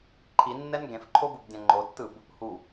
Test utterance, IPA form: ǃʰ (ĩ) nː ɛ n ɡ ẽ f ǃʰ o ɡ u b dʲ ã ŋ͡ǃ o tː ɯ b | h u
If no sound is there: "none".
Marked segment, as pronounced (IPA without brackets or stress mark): i